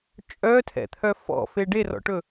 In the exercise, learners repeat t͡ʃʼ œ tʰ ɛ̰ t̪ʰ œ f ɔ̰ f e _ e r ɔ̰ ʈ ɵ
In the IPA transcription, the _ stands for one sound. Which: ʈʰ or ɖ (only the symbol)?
ɖ